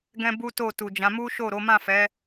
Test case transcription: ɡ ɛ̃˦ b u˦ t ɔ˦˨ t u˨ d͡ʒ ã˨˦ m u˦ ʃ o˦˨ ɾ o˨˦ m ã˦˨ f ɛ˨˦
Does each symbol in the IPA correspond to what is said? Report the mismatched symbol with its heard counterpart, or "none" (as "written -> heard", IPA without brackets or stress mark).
ɔ˦˨ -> o˦˨